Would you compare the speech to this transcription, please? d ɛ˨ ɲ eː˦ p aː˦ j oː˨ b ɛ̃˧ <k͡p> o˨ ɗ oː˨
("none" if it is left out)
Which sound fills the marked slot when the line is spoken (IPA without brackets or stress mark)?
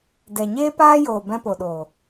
p